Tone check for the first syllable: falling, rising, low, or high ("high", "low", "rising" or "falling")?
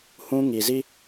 high